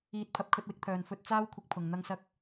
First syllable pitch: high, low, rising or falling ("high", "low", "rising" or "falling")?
rising